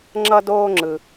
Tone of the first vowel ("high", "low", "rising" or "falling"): high